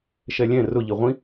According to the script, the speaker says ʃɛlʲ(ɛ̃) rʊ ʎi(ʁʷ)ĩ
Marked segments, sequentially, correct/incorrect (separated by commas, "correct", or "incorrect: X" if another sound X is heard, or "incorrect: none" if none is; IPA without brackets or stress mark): correct, correct